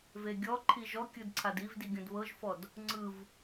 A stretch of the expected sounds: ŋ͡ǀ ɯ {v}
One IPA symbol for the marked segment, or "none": v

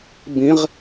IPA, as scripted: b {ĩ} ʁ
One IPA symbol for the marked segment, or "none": ĩ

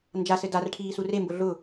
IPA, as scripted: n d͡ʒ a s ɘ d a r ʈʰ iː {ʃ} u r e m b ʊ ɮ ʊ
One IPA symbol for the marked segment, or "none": s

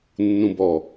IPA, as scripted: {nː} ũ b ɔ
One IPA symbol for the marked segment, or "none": nː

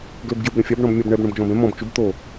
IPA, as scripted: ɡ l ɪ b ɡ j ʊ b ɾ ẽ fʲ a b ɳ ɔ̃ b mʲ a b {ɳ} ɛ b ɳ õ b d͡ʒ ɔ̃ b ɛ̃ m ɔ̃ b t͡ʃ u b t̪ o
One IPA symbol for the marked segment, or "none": ɳ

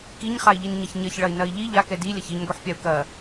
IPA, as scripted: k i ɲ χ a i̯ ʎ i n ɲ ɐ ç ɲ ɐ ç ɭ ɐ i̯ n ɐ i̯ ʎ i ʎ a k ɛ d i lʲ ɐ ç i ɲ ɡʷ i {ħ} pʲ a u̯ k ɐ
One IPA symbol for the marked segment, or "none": ħ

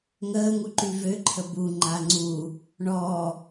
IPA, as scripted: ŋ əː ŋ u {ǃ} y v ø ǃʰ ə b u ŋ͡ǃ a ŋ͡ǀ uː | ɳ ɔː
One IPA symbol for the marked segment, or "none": ǃ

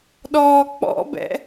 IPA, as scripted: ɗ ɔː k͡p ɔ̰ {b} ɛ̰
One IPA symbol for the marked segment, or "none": b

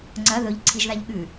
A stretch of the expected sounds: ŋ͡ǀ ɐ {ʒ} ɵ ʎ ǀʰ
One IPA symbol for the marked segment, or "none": ð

